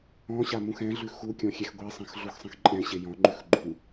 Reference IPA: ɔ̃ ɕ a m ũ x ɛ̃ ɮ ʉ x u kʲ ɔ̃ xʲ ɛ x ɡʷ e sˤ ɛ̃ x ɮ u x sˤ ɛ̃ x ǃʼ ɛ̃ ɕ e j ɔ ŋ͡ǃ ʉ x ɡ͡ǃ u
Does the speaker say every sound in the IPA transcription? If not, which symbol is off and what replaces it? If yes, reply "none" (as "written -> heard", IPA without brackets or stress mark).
ɔ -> ɔ̃